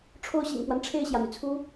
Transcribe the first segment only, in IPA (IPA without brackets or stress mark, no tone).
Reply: ʈ͡ʂʰ